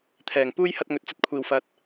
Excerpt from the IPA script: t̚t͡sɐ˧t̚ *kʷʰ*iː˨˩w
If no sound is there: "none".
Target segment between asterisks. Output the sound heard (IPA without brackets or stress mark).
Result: kʷʰ